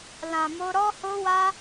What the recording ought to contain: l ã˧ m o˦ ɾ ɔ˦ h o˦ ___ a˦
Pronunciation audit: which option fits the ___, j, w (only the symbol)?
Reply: w